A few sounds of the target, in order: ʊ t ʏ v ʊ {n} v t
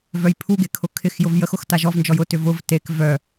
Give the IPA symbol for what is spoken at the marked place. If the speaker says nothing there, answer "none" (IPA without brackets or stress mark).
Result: none